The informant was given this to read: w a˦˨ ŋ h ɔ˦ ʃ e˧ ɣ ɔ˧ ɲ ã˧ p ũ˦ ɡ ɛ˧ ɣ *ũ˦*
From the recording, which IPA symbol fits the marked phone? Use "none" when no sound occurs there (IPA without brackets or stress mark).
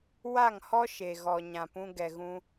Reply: ũ˦